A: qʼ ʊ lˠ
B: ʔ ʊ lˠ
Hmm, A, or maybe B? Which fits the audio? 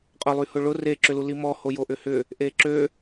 A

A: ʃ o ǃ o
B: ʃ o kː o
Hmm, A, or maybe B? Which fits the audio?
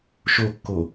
B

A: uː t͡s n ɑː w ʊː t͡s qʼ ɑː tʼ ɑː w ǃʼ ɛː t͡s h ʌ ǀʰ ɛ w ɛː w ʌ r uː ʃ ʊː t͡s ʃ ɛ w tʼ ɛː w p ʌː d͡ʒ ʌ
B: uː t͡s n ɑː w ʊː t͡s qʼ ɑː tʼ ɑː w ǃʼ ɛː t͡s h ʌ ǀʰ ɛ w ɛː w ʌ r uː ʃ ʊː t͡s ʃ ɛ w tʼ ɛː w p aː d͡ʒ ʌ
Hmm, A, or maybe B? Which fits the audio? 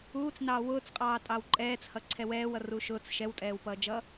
A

